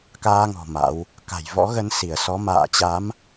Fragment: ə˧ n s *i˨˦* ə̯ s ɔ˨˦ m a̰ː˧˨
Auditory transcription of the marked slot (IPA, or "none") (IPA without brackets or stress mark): i˧˩